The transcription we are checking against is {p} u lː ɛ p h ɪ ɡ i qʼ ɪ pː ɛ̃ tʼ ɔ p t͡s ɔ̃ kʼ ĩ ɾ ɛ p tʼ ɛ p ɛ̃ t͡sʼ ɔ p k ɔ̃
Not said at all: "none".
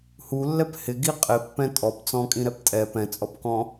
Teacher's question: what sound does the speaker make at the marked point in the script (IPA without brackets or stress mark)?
h